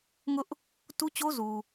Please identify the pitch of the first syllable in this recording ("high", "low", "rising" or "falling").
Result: high